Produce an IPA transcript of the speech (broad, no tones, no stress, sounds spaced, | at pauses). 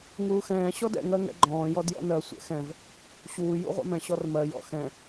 ŋ uː x ɛ̃ː ɕ ɔ d ɛ̰ ŋ ɜ ŋ ɛ̰ ɡ͡ǃ ɔ̃ː j ɔ d j ɔ̰ n ɜ sʷ ɛ̰ x ɛ̃ v | ɕ uː j ṵ ʁʷ a̰ m ɛ̃ ɕ ɔ r m ɜ j ɔ̰ x ɛ̃